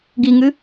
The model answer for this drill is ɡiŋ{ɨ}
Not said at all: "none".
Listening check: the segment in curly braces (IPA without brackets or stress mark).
ɨ